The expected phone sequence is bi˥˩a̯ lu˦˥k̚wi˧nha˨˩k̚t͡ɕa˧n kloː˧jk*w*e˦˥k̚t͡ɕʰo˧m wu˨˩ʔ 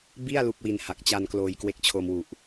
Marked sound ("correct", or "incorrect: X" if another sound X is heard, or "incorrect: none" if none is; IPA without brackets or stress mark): correct